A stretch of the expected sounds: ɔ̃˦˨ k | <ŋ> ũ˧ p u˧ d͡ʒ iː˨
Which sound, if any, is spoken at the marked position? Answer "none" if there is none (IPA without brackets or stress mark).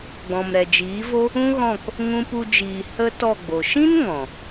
ŋ